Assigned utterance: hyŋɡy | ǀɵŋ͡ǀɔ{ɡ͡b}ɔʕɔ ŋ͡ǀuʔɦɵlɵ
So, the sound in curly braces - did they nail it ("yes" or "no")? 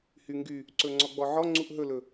yes